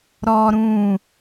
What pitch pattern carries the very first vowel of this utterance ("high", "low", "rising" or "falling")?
high